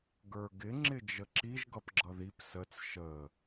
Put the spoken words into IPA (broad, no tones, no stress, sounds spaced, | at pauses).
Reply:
ɡ ə˞ ɡ ɪ ŋ͡ǁ ɪ d͡ʒ ə ǁ i ʒ ɡ ʌ p ɡ͡ǁ ʌ ð i p s ə t͡s ʃ ə